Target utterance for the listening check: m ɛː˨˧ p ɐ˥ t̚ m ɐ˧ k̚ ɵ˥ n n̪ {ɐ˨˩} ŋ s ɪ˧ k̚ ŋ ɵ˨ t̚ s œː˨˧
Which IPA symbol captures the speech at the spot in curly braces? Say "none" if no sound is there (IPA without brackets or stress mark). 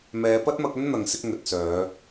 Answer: ɐ˨